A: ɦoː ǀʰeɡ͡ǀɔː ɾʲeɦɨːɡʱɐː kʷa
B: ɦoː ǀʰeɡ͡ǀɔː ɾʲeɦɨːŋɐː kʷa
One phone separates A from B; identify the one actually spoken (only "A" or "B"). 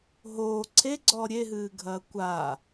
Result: A